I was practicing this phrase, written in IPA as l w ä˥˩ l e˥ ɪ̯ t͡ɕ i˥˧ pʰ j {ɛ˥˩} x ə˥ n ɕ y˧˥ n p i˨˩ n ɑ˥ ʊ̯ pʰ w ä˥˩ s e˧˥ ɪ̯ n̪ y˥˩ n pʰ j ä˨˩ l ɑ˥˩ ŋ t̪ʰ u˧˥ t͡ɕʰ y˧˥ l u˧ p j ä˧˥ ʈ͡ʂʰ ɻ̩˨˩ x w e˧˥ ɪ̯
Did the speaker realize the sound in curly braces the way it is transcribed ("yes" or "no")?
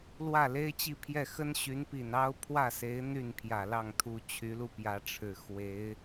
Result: yes